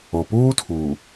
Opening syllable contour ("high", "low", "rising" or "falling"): low